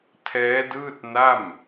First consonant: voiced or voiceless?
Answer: voiceless